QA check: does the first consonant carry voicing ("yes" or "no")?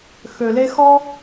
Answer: no